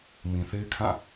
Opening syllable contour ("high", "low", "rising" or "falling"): low